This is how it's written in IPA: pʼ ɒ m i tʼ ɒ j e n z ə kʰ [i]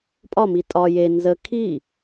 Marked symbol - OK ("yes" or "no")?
yes